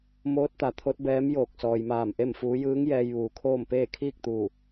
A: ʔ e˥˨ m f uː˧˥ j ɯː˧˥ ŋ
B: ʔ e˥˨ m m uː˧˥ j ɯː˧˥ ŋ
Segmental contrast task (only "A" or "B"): A